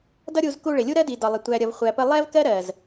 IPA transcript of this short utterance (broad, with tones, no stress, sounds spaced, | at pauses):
d ʌ˦ ɾʲ u˧ z k u˧ ɭ ɪ˨ lʲ u˦ ɾ ɜ˦ d i˨ d ɒ˨ lˠ ɪ˨ tʷ æ˨ ɾʲ ʌ˨ v χʷ æ˨ p ə˧ lˠ ɛ˦ v k ɜ˦ ɾ ɜ˨ z